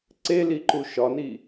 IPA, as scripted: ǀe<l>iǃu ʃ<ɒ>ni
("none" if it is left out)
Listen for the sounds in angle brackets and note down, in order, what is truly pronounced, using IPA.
l, ɒ

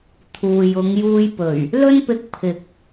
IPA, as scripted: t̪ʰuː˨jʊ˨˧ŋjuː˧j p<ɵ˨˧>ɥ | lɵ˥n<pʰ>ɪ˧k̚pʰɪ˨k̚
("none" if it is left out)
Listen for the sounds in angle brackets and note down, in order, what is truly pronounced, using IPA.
ɵ˨˩, p

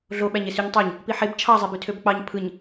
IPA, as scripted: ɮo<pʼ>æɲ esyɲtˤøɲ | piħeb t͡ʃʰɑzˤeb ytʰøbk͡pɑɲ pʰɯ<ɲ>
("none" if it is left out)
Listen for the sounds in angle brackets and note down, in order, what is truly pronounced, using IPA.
ɓ, ɲ

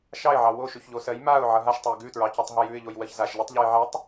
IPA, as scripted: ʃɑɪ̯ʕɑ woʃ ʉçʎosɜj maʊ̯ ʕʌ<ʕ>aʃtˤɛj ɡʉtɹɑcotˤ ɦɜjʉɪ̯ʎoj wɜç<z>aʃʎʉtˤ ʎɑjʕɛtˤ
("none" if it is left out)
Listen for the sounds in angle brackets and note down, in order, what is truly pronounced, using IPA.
ɦ, z

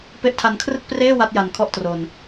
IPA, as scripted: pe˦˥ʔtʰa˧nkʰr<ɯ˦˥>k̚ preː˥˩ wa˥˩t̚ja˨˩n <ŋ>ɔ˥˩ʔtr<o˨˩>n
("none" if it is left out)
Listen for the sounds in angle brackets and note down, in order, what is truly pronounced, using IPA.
ɯ˥˩, kʰ, o˨˩

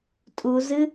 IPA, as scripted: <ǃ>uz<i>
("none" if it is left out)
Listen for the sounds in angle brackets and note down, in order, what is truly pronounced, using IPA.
tʼ, ɨ

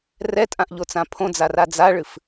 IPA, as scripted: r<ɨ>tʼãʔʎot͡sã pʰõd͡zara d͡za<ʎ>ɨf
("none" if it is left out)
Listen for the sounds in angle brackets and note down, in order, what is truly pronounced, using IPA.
ɛ, ɭ

